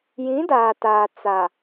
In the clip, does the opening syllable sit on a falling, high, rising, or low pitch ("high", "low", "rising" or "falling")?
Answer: rising